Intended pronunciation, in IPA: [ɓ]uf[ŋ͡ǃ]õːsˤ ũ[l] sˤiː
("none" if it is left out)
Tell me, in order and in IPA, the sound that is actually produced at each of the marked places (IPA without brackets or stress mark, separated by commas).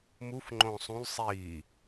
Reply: m, ŋ͡ǃ, l